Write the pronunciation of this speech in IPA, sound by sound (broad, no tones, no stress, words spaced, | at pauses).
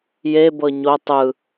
jebɤ ɲo tˤɯ